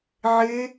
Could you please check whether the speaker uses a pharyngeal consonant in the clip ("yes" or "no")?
yes